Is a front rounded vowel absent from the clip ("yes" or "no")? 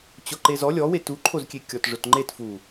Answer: yes